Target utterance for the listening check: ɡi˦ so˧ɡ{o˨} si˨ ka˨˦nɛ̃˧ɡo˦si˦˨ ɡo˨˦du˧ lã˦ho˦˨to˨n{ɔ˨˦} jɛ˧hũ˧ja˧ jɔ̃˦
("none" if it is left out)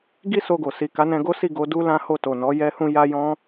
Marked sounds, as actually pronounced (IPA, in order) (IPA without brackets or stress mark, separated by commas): o˨, ɔ˨˦